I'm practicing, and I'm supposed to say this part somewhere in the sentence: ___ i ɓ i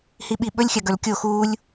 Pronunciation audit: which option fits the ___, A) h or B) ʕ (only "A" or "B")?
A